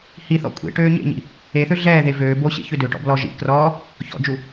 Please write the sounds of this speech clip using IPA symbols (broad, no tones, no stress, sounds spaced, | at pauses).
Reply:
h i θ ɔ̰ kʷʼ ḛ ʈ øː ɲ ḛ ɲ ḭ | e θ ø ɮ ɛː ð e v øː b o ɕ ḛ ç ø d ø ʈ ɔ̰ b l ɔ ʒ ḭ k r ɔː | ç ɔ̰ d͡ʒ u